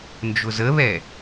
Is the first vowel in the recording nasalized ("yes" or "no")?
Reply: no